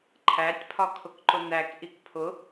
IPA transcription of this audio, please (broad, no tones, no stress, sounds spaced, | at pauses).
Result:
ǃʰ æ tʲ pʰ ɒ kʰ ʊ k ǃ ʊ n̪ æ k ʔ i k pʰ ʊ